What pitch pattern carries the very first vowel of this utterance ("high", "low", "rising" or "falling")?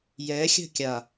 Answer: rising